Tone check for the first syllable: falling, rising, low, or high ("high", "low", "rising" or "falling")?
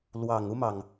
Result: low